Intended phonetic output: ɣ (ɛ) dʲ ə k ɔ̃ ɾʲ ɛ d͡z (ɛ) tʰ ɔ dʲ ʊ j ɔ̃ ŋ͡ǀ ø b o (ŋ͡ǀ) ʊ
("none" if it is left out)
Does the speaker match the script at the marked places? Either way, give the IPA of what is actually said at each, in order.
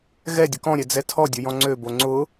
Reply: ɛ, ɛ, ŋ͡ǀ

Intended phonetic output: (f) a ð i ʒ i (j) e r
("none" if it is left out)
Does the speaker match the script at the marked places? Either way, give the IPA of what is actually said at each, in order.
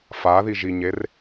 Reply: f, ɲ

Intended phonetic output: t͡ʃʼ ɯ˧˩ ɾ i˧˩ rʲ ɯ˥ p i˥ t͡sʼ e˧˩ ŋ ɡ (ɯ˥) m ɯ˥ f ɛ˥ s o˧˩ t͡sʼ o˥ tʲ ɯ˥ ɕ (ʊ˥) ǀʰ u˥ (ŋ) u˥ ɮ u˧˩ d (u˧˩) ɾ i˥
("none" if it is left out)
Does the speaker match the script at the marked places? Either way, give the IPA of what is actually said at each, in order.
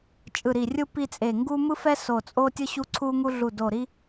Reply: u˥, u˥, ŋ, o˧˩

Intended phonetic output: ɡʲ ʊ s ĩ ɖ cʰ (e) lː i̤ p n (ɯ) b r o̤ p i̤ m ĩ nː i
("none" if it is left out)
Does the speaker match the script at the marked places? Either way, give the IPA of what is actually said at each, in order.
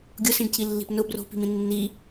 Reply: i, ʊ

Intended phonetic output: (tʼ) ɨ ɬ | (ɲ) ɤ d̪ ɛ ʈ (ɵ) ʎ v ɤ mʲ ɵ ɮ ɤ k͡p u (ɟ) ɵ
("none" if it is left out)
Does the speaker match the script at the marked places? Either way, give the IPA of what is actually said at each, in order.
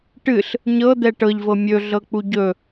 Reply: ʈ, ɲ, ɤ, ɟ

